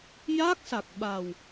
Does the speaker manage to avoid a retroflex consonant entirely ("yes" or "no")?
yes